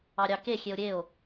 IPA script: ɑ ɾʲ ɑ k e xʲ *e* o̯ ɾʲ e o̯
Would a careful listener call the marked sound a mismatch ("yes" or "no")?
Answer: no